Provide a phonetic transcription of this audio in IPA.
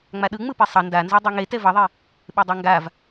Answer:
ŋ͡m a ɗ ɯ ŋ͡m ɯ p e sˤ ʌ n d a n z o dˤ ɯ ŋ e t ɛ v ʌ ðˤ i | ɓ e dˤ a ŋ ɡ a v

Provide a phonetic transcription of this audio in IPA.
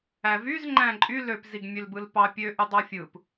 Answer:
æ v y z ŋ͡ǃ æ̃ ǃʼ y l ø p z i ɡ mʲ ø l b ɯ l p ɑ pʲ ø ʔ y dˤ ɑ fʲ ɯ p

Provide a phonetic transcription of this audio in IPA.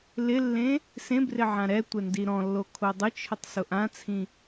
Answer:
l ɪ lː ẽ | s ẽ b r ɪ ʕ ã ɾ ɛ tʷ ɛ n d i ɾ ɔ̃ lː o kʰ o dˤ ʊ t͡ʃʰ ʊ tˤ s ʊ ʔ ã t͡sʰ ĩ

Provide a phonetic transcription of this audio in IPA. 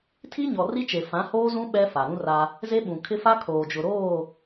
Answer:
tʰ i˦ ɲ ɔ˨ r i˦ t͡ʃ e˨ f ã˨˦ h oː˦ z ũ˦ ɓ ɛ˦ f a˨ ɾ ũ˦ r a˦ | z e˦ ɓ ũ˨ kʰ ɪ˦ f a˦ kʰ oː˨ d͡ʒ ʊ˨ ɾ oː˦˨

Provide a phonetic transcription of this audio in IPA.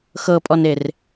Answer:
x ɤ pʼ ɔ n e r

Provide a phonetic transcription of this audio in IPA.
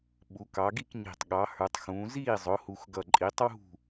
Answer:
ɓ u˩˧ k ɑ˩˧ ɡ i˥˩ k ɲ i̤˨˩ tˤ ɠ ɑ˩˧ h ə˞˩˧ tˤ x ũː˩˧ z iː˥˩ zˤ ʊ˩˧ h u˨˩ x ɡ ʌ˨˩ ǃʼ i˩˧ tˤ w ṳ˥˩

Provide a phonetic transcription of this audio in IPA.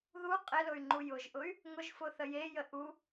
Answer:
ð u qʼ ɪ l ʊ y̯ ŋ͡ǃ u j ʊ ʒ ʔ ʊ y̯ | ŋ ʊ ʒ f ʊ θ ə j e j ə ʔ u

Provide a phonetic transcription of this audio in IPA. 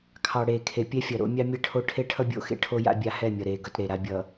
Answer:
kʰ ɑ˨ ɽ eː˨ kʰ e˨ pʲ ɛ˦ fʲ ʌ˨ ɾ o̰˦ mʲ ɑ˦ mʲ e˦˨ ʈʰ o˦ ʈʰ e˦ ʈʰ ʌ˦ bʲ o̰˨˦ x ḛ˦ ʈʰ o˦ j a̰˦ bʲ a˦ h ɛ˦˨ mʲ ʌ˨ ɾ eː˨ ɡ ʌ˦ t ɾ e˨ ɾ a˦ bʲ ʌ˨

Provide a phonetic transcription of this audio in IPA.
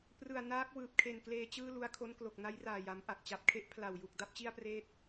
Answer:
p r ɯ˨˩ a̯ n aː˦˥ k̚ w ɯː˨˩ p̚ kʰ e˨˩ n k l eː˧ t͡ɕ ɯː˥˩ l u˧ a̯ kʰ o˦˥ n k l o˨˩ k̚ n a˦˥ j r aː˨˩ j a˩˦ m ʔ a˨˩ k̚ t͡ɕ a˨˩ p̚ kʰ e˥˩ ʔ pʰ l a˨˩ w j u˨˩ k̚ d a˥˩ p̚ t͡ɕ i˥˩ a̯ p r eː˥˩ t̚

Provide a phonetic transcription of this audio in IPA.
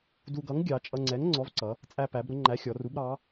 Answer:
d u˧ ɡ ʌ˨˥ ŋ ɡʲ ɑ˩˧ t͡ʃʼ ʌ˧ ŋ͡ǀ ɛ˨˥ ŋ ŋ͡ǀ ɔ˨˥ v ǀ ʌ˩˧ | t͡sʼ æ˧ p æ˩˧ b ɾ ʊ˩˧ ŋ͡ǃ æ˨˥ xʲ ɔ˩˧ r u˨˥ b ɾ ɑ˨˥

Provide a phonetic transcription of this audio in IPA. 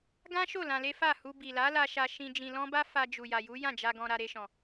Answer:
ɡ ã˦ ʃ o˦˨ l ã˧ l e˦ f a˦˨ h u˧ b i˨ l a˨˦ l a˧ ʃ a˧ ʃ ĩ˧ d͡ʒ ĩ˧ l ɔ̃˦ b a˦ f a˧ d͡ʒ u˨ j a˨ j u˨˦ j ã˦˨ d͡ʒ a˧ ɡ ɔ̃˧ ɾ a˧ ɾ e˧ ʃ ɔ̃˨

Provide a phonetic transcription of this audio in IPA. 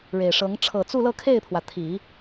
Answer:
ɻ e˨˩ ɪ̯ ʂ ɤ˧˥ ŋ ʈ͡ʂʰ ɤ˨˩ t͡s u˥˧ l ɤ˥˧ kʰ e˥˩ ɪ̯ pʰ w ä˩ t̪ʰ i˨˩˦

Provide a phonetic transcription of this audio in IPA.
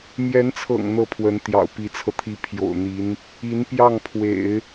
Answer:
m j ɛ˧˥ n t͡sʰ ɤ̰˨˩ ŋ n̪ ɤ˥˩ pʰ w ə˧˥ n t̪ j ɑ̰˨˩ ʊ̯ p i˧˥ t͡sʰ ɤ˧ t̪ʰ i˥ pʰ j o̰˨˩ ʊ̯ n̪ i˧˥ n | i˧˥ n p j ɑ˥˩ ŋ pʰ w ḛ˨˩˦ ɪ̯

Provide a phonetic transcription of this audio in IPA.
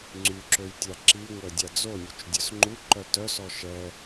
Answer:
ŋ͡ǀ y ǁ ø j tʲ a ǁ i ŋʷ ɛ dʲ a d͡z o nʲ u t͡ʃ dʲ œ s ŋ͡ǃ u ǃ œ t œ s ɔ ʃ ɛ

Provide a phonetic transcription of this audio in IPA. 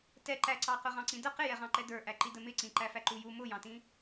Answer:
t ɛ ǃ æ ǀ ɑ q ʊ ʁ ɑ̃ ǀ ĩ d ə q ɪ j ɛ ʁ ɑ̃ ǃ ɛ d ə˞ ʔ æ ǃ i d ə m ɪ ǀ ĩ ǃ æ f æ ǃ u j u m ʊ j ɑ̃ t ĩ

